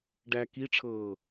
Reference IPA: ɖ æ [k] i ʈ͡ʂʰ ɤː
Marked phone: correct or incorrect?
correct